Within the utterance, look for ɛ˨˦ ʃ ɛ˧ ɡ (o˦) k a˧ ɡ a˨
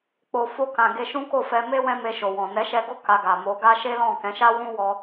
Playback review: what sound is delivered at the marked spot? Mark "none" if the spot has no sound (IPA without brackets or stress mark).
o˦